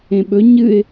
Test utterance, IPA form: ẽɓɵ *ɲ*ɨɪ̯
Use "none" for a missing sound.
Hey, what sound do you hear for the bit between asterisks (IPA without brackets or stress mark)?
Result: ɲ